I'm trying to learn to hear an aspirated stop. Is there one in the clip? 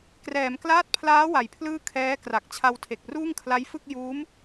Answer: yes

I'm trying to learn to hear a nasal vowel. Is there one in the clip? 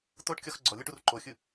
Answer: no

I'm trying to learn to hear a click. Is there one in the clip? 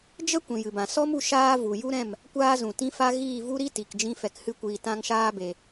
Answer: no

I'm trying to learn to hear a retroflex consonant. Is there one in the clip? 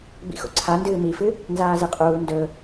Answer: no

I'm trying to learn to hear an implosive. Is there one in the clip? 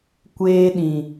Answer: yes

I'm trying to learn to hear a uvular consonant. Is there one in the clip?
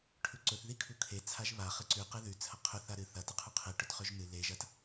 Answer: yes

